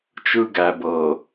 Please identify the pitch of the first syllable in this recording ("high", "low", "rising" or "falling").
high